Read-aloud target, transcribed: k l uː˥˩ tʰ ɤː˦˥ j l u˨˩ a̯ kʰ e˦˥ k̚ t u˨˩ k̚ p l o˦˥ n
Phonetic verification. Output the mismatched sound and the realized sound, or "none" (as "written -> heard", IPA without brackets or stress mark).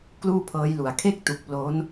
tʰ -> pʰ